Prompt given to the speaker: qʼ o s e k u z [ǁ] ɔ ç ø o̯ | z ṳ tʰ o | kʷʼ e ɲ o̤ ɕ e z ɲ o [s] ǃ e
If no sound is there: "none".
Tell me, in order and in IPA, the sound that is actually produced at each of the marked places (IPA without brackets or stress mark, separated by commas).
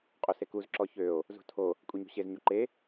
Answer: ǁ, none